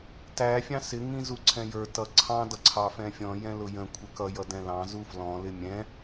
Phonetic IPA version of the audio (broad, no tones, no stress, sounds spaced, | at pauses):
t æ fʲ ɑ̃ s ɪ ŋ ĩ z u ǀʰ ɛ̃ j ə˞ t ʌ ǀʰ ɑ̃ d ʌ ǀʰ ɑ f ɛ̃ fʲ ɔ̃ j ɛ̃ l ʊ j ə̃ kʷʰ ə k ʌ j ʌ d ɛ̃ l ɑ̃ z u f l ɔ̃ l ɪ mʲ ɛ̃